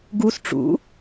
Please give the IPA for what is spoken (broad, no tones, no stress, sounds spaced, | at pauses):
ɡ u s ʈ͡ʂ ṵ